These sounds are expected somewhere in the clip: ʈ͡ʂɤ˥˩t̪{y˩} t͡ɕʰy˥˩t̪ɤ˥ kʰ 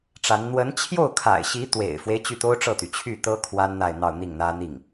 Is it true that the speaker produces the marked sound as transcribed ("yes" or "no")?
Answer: yes